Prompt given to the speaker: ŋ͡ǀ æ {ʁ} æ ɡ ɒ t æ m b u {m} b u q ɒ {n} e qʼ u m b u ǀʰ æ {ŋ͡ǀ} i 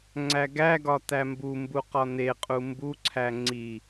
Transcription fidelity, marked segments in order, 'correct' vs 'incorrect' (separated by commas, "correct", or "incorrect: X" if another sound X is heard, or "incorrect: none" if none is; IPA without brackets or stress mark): incorrect: ɡ, correct, correct, correct